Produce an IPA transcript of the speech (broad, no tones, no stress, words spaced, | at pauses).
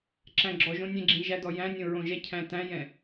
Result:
ǁæ̃ɡ͡ǁɔʒõ nʲɛ̃ɡ͡ǁĩʒædɔ jæ̃nʲõ ɹõʒɛcʰæ̃ tæ̃jɛ̃